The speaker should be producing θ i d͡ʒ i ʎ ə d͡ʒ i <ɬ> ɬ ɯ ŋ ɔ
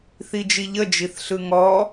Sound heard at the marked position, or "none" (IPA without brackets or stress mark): θ